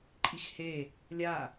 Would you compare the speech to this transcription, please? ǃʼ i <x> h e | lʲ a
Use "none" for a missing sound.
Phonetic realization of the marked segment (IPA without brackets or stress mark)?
x